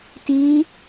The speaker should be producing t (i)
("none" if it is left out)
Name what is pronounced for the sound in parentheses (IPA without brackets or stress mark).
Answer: i